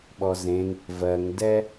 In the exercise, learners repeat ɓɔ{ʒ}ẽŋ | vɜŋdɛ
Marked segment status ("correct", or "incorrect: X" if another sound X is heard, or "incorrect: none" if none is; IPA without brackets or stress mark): incorrect: z